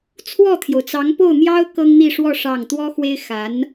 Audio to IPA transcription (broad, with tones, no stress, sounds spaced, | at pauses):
t͡sʰ w ɔ˥˩ t̪ʰ j o˩ ʊ̯ t͡s ɑ˧˥ ŋ p o˥˩ ʊ̯ n̪ j ɑ˥ ʊ̯ k ɤ˥ ŋ n̪ i˥˧ ʂ w ɔ˥˧ ʂ ɑ˥˩ ŋ t̪ w ɔ˥ x w e˥ ɪ̯ x a˧˥ n